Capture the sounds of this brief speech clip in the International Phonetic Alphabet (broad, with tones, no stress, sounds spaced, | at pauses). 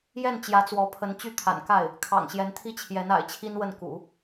j ɛ˥˩ n t͡ɕ j ä˧˥ t͡s w ɔ˧˥ pʰ ə˧˥ n t͡ɕ y˥ t̪ʰ a̰˨˩ n k a˥˩ ɪ̯ | kʰ ɑ̰˨˩ ŋ ɕ j ɛ˧˥ n t̪ʰ i˥ t͡ɕʰ j ɛ˧˥ n a̰˨˩ ɪ̯ t͡ɕʰ i˥ n w ə˥˩ n k ṵ˨˩˦